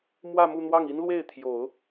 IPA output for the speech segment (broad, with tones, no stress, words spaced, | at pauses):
mwä˥˧mu˥˧n̪wɑ˥˩ŋ i˥nlwe˥˩ɪ̯ t̪ʰjo˨˩˦ʊ̯